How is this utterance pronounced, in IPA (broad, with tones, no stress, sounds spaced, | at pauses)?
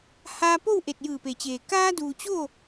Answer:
h aː˧ p o˥˨ w ʔ e˧˩ t̚ j ɯː˧˩ p e˩ t͡ɕ eː˩ k aː˧ d uː˩ t͡ɕ o˥˨